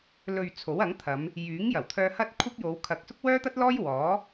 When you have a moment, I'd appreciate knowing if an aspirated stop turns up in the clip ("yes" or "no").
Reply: yes